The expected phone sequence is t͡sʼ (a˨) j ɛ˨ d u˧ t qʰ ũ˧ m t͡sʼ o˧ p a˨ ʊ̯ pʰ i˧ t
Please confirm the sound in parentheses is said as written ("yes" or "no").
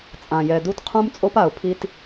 no